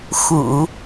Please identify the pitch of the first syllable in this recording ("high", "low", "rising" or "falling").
low